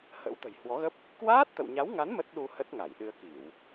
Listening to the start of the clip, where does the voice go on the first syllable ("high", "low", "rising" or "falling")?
rising